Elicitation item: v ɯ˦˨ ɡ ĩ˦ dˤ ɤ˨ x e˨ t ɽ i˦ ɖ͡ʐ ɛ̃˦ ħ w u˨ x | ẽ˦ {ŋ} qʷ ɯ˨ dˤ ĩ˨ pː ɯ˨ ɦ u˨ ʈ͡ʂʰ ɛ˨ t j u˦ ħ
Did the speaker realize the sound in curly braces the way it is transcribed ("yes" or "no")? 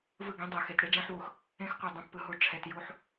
no